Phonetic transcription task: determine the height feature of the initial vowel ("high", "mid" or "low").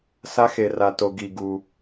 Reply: low